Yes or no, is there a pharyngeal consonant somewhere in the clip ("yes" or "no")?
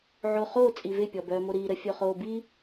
yes